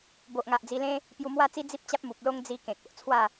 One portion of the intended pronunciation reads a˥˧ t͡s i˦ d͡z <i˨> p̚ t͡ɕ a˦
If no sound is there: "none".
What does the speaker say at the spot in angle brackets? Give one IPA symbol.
i˦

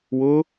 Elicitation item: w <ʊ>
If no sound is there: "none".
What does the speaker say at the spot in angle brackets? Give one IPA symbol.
ʊ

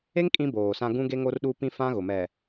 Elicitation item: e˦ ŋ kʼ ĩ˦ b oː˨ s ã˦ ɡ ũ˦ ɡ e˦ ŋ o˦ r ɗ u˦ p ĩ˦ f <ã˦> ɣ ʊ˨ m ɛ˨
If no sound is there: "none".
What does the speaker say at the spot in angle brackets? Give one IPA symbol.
ã˦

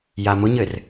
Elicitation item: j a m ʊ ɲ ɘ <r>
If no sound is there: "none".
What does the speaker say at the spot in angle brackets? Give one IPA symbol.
r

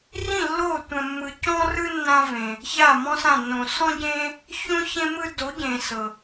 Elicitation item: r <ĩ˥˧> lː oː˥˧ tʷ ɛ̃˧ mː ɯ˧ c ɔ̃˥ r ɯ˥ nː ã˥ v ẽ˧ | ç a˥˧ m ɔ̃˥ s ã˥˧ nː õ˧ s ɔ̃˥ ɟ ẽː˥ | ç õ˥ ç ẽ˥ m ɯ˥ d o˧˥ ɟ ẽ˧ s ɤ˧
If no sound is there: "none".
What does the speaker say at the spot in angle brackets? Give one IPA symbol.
ĩ˥˧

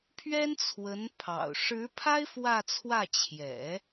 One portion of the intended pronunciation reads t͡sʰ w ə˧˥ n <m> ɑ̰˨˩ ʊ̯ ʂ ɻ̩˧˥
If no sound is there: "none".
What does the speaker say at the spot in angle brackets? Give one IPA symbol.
pʰ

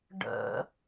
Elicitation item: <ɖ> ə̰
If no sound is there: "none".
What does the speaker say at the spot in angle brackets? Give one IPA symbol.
ɖ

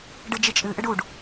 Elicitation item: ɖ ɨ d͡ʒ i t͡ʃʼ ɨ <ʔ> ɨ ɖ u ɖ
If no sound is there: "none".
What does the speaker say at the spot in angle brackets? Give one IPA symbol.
ʔ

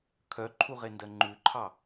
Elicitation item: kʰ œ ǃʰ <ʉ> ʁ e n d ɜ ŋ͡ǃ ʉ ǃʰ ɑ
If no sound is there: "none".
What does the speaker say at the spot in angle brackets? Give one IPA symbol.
u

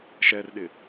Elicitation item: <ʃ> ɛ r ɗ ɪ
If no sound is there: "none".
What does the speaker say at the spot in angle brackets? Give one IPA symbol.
ʃ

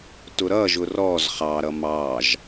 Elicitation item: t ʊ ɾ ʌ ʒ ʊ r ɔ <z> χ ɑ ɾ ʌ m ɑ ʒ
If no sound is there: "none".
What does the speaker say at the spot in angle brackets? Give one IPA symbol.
z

